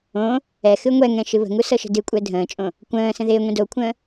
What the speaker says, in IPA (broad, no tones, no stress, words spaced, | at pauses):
õ | ɛxɨ ŋʷɛŋɛ̃ ʃɨβə̤ŋu sɤʃə̤dɨkʷʼɛ dʱə̃ːt͡ʃʼõ | kʷə̃ː sə̃ðɪːŋʷĩ dokʷʰə̃ː